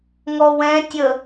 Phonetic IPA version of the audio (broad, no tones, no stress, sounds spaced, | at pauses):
ŋ ɔ w ɛ̃ tʲ ə